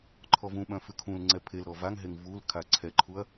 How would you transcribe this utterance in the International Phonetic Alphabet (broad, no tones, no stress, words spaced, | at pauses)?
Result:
ǃʰɔvũɓœ̃ fʉkʰũlŋ͡ǀɛ pʰelɾɔ vaŋɦeŋ vul kʰaǀʰɛǃʰuɐ̯